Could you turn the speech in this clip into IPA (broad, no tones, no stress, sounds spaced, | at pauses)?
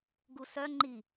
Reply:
ɡ u s œ ŋ͡ǃ i